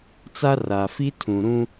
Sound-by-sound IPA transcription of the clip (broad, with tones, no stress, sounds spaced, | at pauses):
t͡s a˦ r a˨ f i˦ tʰ ũ˨ ɾ ũ˦